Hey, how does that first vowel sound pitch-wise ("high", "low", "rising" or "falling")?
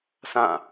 falling